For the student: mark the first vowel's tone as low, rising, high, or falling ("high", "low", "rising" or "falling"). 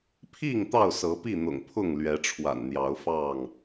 falling